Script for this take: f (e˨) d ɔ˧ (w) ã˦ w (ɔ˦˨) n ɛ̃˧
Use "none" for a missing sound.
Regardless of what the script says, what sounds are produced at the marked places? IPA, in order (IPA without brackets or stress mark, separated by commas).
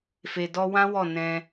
e˨, w, ɔ˦˨